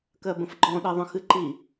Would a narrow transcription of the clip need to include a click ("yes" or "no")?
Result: yes